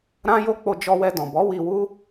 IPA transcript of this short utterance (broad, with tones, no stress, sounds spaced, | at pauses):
ɾ ã˦ j o˦ k͡p o˧ d͡ʒ ɔ˧ w ɛ˧ d ɔ̃˨ b ɔ˨˦ w i˧ w u˦